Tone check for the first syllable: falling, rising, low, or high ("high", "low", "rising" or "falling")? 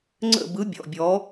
falling